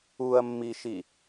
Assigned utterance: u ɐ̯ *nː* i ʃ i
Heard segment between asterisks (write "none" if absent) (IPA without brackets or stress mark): mː